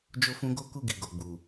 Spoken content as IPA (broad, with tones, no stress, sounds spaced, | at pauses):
d͡ʒ o˧ f ũ˧ ɡ o˦ k u˦˨ ɡ i˨ ɡ o˨ ɡ͡b u˨